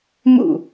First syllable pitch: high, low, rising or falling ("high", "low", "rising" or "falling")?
falling